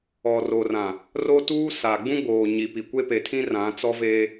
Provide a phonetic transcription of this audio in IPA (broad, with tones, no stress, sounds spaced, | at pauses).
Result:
ɔ˨ r o˨ r ã˨ | r o˦ t uː˦ s a˨ ɡ͡b ũ˦ ɡ͡b oː˨ ɲ i˨ p i˨ kʷ e˦ p e˨ tʰ ĩ˦ r ã˨˦ t͡s ɔ˦ v eː˦